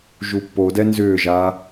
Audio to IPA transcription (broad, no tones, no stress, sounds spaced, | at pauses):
ʒ u pː o d ɛ n z ʏː ʒ aː